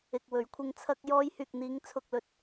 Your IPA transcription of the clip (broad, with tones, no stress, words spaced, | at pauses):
ɪ˨k̚ wɵ˨˧ɥkʷʰɪ˧ŋ t͡sʰɐ˧k̚ jɔː˧jhyː˨k̚n̪iː˨˧ŋ t͡sʰʊ˨k̚lɵ˨t̚